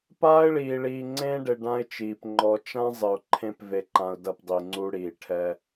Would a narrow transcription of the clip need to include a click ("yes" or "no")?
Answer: yes